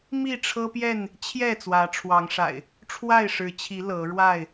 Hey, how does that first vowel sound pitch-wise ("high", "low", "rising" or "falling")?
falling